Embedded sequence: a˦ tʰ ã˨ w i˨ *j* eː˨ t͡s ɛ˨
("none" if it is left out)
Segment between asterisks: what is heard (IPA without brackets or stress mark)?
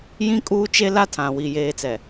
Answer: j